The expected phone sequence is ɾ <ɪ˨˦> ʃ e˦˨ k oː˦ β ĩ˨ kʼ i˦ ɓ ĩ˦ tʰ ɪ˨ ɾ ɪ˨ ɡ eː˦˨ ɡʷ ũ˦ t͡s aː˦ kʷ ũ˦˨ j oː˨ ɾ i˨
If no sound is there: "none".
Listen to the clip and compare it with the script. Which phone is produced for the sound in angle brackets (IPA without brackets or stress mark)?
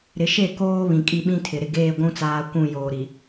ɪ˨˦